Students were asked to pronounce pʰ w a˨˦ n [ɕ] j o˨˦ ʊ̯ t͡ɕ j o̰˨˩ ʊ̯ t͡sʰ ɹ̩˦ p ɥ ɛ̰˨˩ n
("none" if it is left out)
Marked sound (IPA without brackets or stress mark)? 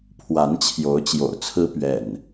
t͡ɕʰ